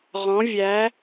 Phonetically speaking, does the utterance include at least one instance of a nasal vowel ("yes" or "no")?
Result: yes